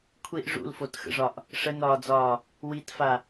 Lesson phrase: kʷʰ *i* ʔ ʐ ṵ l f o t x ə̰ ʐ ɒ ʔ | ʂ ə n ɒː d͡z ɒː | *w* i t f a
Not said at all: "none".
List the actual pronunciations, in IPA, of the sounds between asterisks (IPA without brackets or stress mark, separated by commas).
i, w